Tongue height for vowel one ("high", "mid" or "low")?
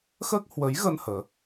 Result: mid